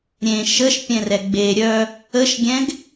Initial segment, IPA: ɾʲ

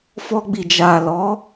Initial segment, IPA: f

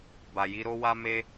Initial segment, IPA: b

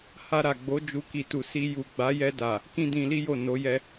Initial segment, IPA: h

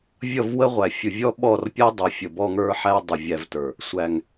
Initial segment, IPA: vʲ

